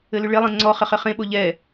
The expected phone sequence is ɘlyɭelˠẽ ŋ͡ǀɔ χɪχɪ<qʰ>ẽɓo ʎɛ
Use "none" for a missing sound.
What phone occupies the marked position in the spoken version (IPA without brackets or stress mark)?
χ